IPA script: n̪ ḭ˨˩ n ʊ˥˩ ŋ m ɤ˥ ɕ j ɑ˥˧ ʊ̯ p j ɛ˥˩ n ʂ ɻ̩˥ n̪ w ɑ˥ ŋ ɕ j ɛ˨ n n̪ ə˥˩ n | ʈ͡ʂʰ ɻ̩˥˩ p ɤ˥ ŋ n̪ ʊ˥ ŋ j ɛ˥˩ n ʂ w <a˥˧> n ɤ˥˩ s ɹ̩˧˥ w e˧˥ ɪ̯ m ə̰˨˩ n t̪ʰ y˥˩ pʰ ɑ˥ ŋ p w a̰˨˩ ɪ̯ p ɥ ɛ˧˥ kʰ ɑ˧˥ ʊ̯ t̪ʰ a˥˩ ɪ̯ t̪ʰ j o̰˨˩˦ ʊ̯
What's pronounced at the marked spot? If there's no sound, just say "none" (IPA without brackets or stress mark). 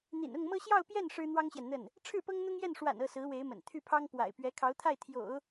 a̰˨˩